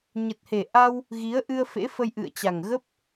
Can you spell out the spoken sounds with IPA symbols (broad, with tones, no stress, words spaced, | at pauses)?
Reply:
ɲə˨˩t̚he˨˩ʔa˧w | ɣi˨˦ə̯ʔɨ˧ə̯fḛ˧˥ fə˧jʔɨ̰˧˨ə̯t͡ɕa˨˩ŋɣə˦˥p̚